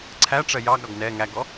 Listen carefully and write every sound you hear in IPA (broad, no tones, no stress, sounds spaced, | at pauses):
ǀʰ æ ʈ͡ʂ ɜ j ɑ ɡ ɾ ɒ ɡ n ɛ ŋ æ ɡ ɔ